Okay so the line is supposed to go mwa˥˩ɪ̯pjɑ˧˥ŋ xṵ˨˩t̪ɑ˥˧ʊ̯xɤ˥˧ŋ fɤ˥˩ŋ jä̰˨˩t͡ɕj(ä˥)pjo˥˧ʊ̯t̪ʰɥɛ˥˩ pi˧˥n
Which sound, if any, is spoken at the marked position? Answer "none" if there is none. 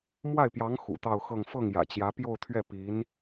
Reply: ä˧˥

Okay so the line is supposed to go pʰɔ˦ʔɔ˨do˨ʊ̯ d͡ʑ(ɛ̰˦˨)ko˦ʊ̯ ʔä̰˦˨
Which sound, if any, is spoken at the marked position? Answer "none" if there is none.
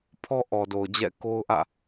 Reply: ɛ̰˦˨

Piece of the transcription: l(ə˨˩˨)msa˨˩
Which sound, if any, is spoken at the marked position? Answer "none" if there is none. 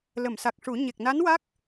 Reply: ə˨˩˨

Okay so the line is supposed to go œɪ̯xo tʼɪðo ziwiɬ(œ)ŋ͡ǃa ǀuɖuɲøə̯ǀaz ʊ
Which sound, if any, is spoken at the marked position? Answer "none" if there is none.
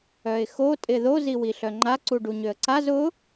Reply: œ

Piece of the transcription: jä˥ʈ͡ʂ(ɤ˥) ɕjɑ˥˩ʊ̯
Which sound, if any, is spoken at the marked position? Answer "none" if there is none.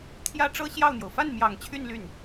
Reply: ɤ˥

